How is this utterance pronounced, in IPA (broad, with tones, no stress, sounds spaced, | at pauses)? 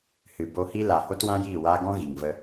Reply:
h ɨ˨ b o˧ h i˦ l a˨ h o˦ t w ã˦ j iː˦˨ w aː˦ ɡ ɔ̃˦ ɣ i˨ ŋ v ə˧